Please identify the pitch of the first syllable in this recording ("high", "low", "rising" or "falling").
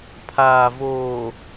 low